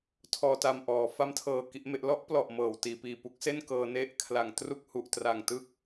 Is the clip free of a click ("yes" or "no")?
yes